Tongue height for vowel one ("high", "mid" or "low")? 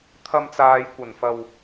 low